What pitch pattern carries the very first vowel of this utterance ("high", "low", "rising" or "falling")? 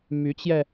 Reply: rising